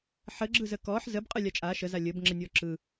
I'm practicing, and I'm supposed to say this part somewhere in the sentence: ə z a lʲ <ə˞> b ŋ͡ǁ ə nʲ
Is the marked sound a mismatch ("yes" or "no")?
yes